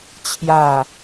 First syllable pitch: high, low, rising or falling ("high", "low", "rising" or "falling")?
falling